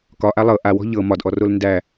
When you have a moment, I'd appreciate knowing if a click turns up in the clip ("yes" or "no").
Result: no